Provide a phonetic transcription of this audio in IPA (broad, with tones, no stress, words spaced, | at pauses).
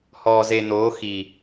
hɔː˨ze˨ n̪oː˨˦xi˨